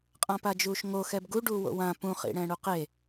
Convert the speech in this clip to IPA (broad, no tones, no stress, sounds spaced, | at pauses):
qʼ ã p a d͡ʒ uː ʃ ŋ o x ɛ b ɡ u ɖ uː w o̰ w ã p ũ χ ḭ ɽ ɛ̃ ɽ u q e